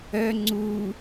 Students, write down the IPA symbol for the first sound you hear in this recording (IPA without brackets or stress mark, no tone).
œ